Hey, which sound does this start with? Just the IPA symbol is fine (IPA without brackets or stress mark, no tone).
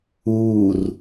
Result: uː